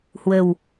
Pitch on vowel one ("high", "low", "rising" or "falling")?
low